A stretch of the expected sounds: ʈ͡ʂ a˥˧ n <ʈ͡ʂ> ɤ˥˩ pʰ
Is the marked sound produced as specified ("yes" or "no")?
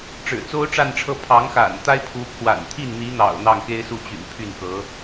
no